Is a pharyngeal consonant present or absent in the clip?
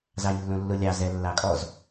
absent